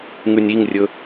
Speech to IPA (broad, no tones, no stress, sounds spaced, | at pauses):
ŋ ʉ nʲ i ŋ rʲ ɵ